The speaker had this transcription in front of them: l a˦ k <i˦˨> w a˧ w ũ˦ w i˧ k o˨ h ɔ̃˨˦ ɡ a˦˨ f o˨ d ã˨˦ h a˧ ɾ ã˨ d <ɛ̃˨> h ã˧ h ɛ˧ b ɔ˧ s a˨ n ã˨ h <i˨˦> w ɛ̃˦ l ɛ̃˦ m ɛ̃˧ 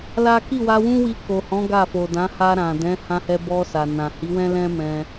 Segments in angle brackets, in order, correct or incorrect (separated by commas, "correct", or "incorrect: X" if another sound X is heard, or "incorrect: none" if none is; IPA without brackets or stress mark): correct, incorrect: ɛ̃˨˦, correct